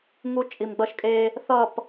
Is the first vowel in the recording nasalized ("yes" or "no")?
no